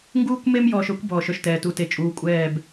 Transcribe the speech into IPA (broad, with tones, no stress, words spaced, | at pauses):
ŋɡuː˦kʷ me˦mjɔː˨ʃœ˦kʷ bɔː˨ʃœ˨ʃtɛː˨ tu˨ te˨t͡ʃʼuː˨ kʷʼɛː˦˨b